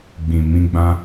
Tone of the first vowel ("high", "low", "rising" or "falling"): low